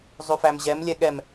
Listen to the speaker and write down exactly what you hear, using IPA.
zˤʉfæmʑɛm lʲɛɠɛm

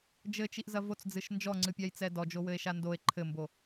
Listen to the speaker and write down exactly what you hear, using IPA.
d͡ʒɘt͡ʃiʔzɐ vot͡sd͡zɨʃ nd͡ʒɔŋ͡ǀɨpʲajt͡sɛ dɔd͡ʒowɘe̯ʃa ndoe̯ ǃʰɘmbo

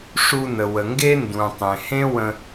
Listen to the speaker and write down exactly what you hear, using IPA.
ʂu˧nə˩wə˩ŋɡe˥ ndũ˩ tˤẽ˩hẽ˥wə̃˧

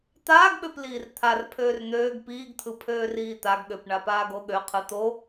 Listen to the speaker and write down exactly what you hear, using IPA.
t̪aːɡɓøpliːr t̪ʰarpʰøːr n̪øːɡ piːɡt̪ʰɯ pʰøːriːt̪aɡɠøp ɳapaːɡoɠø qʰɯt̪o

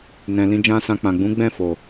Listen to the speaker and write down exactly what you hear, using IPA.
nɛ̃˨lĩ˧d͡ʒã˦sã˧ k͡pã˨ɡ͡bũ˨˦ɡ͡bɛ̃˦˨ fo˨

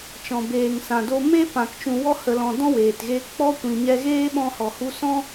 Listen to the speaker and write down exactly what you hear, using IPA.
t͡ʃɔ̃˨beː˨ŋsã˨do˧ me˦ pã˨k t͡ʃũ˨wɔ˧hə˨lɔ̃˨ dɔ̃˦weː˨tɣeː˧k k͡pɔ˦kʷĩ˨ɲɛ˧ ɣeː˦ɓɔ̃˧hɔ˨ hu˧sɔ̃˦

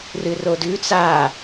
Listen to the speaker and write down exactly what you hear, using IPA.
rɨrodʉ t͡sa

